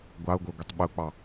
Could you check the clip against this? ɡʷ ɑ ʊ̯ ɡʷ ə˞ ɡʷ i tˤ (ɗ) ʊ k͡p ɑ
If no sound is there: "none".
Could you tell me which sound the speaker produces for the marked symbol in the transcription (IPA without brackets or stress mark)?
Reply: ɓ